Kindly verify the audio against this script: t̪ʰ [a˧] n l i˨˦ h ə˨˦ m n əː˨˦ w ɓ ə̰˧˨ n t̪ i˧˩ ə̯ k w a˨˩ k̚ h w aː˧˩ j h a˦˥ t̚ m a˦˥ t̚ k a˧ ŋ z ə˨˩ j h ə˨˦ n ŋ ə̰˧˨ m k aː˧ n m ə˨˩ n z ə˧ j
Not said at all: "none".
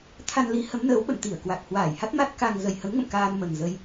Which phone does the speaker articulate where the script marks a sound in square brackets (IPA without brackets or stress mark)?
a˧